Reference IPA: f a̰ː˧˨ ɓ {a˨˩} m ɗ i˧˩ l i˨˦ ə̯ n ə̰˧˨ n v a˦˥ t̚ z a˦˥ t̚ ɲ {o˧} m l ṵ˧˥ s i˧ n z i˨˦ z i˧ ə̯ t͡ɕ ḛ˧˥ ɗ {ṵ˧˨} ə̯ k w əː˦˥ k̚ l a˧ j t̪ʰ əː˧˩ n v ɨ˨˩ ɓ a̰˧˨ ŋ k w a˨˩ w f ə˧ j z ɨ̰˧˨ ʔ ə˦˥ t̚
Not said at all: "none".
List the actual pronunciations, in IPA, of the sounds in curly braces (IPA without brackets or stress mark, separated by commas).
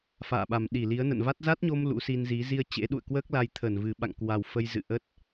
a˨˩, o˧, ṵ˧˨